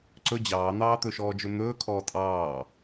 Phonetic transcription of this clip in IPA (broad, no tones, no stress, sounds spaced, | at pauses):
ǀ ɵ d͡ʑ ɑː n̪ ɑː t̪ ɵ ʃ ɔː d͡ʒ ɵ n̪ ɵː kʰ ɔː tʼ ɑː